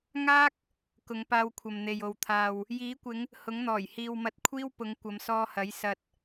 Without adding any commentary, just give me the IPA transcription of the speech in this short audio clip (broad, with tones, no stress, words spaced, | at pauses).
ŋaː˥k̚ | kʊ˨˧ŋpaː˧wkʷʰɐ˨mn̪e˨j o˨wt̪ʰaː˨w | jiː˨˥kʷɪ˨˧ŋ | hʊ˨˥ŋn̪ɔː˨˩j hiː˨wmɐ˧t̚ kʷʰiː˥wpʊ˨˧ŋ kʷɐ˨˧msɔː˧hɐ˨˥j sɐ˧t̚